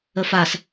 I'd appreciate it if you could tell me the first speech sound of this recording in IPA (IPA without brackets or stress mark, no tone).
ə